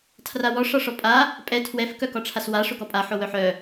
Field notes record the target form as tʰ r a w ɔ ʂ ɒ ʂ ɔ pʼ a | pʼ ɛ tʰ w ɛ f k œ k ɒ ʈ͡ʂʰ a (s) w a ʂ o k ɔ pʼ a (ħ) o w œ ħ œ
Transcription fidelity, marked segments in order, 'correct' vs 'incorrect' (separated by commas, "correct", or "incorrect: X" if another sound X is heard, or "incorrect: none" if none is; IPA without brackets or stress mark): correct, correct